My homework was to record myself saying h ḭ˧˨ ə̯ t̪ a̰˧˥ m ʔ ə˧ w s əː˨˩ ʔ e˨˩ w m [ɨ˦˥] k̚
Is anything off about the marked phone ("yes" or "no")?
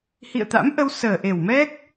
yes